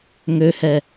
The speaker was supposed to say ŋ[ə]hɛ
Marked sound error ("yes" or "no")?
yes